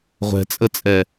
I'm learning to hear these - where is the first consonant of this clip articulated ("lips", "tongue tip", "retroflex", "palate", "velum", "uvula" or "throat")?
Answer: uvula